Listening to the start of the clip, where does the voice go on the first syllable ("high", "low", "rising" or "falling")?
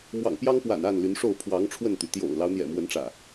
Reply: low